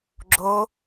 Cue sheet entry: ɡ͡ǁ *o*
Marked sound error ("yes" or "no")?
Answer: no